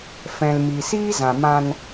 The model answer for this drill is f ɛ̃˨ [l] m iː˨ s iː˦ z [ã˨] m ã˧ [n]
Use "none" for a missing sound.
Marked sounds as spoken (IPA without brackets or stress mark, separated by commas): l, ã˨, n